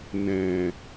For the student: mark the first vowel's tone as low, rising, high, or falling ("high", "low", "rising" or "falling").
low